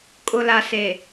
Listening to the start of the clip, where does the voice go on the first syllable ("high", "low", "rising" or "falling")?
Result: low